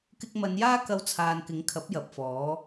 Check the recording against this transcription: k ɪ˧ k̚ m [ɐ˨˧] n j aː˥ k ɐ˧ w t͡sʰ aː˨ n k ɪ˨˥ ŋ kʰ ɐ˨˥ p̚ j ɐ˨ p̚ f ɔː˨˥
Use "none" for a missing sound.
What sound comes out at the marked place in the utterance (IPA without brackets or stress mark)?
ɐ˨˧